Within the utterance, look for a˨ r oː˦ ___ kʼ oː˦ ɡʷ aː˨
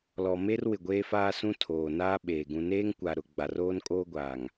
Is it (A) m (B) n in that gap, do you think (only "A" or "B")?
B